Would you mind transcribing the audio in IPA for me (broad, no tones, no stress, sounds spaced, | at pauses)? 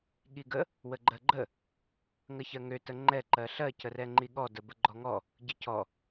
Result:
ɠ i ɡ ə | w ə ɡ͡ǃ ɜ ɡ͡ǃ ə | ŋ ə ç ɜ ŋ ø t ə ŋ͡ǃ ɛ ǃ ɜ ɬ ɜ c ə r ɛ ŋ͡ǃ i ɠ ɔ d ə b ə ɡ͡ǃ ɔ ŋ ɔ | ɟ ə c ɔ